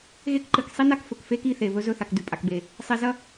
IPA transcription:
ɣ e˦ k ǃ ɨ˨ k sˤ i˦ n a˦˨ k f ɵ˨ k f e˦ k i˦˨ θ e˨ β ɵ˦ z ɵ˦˨ θ a˨ k d ʉ˨ pʼ a˨ k b e˨ | sˤ i˨ z ɐ˦

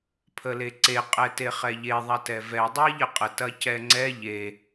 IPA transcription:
pʰ ə l e ǀ e qʼ ɛ t e χ ɛ ʎ e ðˤ ɐ t ɛ v ɛ dˤ i ʎ ə qʼ ə t ɐ c ɛ ŋ͡ǀ ɛ ʎ e

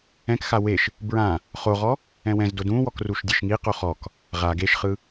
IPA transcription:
ɛ̃ k x a w e ʃ | b ɹ ã | χ o ʁ ɔ | ɛ̃ w ɛ̃ z d o d ũ w ɔ k r u ʃ dʲ e ʃ ŋ i q o χ ɔ k | ʁ a ɡ e ʃ χ ɯ

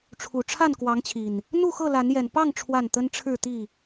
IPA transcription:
ʈ͡ʂʰ u˨˩ ʈ͡ʂʰ a˥˨ n k w ɑ˨˦ ŋ t͡ɕʰ i˨˩ n | n̪ u˥˨ x ɤ˥˨ l a˨˦ n j ɛ˨˩ n p ɑ˥˨ ŋ ʈ͡ʂʰ w a˥˨ n t̪ ə˦ n ʈ͡ʂʰ ɻ̩˥˨ t̪ i˥˨

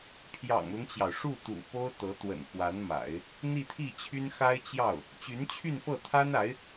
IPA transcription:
pʰ j ɑ̰˨˩ ŋ l ʊ˦ ŋ t͡ɕ j ɑ˩ ʊ̯ ʂ u˥˩ t̪ ṵ˨˩ p o˥ ʊ̯ t̪ ɤ˧˥ t̪ w ə̰˨˩ n x w a˧˥ n m a̰˨˩˦ ɪ̯ | n̪ i˥˧ t̪ʰ i˥˩ t͡ɕʰ y˥ n x a˥ ɪ̯ t͡ɕ j ɑ˥˩ ʊ̯ | t͡ɕ y˧˥ n t͡ɕʰ y˥˧ n f ɤ˥˩ t̪ʰ a˥ n a˧˥ ɪ̯

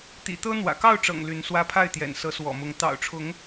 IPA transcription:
t̪ ḭ˨˩ t̪ ɤ˦ n̪ w ä̰˨˩ k ɑ˥˨ ʊ̯ ʈ͡ʂ ɤ̰˨˩ ŋ l y˨˦ n s w ä˦ pʰ a˥˨ ɪ̯ t̪ j ɛ̰˨˩ n s ɤ˨˦ s w ɔ̰˨˩ m ʊ˨˦ ŋ t̪ ɑ̰˨˩ ʊ̯ ʈ͡ʂʰ ʊ˨˦ ŋ

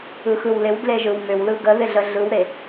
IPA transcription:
ɯ x ɯ w l ɪ w d l e ʒ ɯ w m ʏ w l ɯ ɡ ə ð ɪ ɮ ə ɮ ɯ w ɾ e

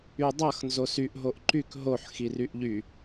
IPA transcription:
y dˤ ʌ x n z o s y ʔ ɦ o ʔ ǃ y k ɦ o ħ x i r y ʔ ʎ y

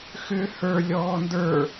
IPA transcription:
x ʏ h ə˞ lʲ ɔː n d ə˞

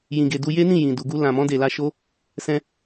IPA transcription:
j ĩ˨ ɡ e˨ d u˧ j e˦ n ĩ˦˨ j ĩ˨ d u˨ ɡ u˧ l ã˨ m ɔ̃˧ d e˨ l a˧ ʃ o˦ | s ɛ̃˧

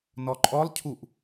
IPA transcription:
n ɔ ǃʼ ɔ lˠ cʰ u ʔ

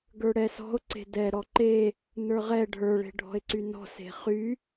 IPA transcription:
ɡ ə˞ ɽ ɛ s ɔ̤ o̯ ǀ e̤ d ɛ ɾ ɔ ǃ e | n ə˞ ʁ ɛ ɖʱ ə˞ ɭ e̤ ɖʱ ɔ̤ e̯ ǀ y n ɔ̤ s e̤ χ y

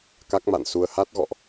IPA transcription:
k a˦˥ k̚ m a̰˧˨ n s u˧ ə̯ h a˦˥ t̚ ɣ ɔ̰˧˨ ʔ

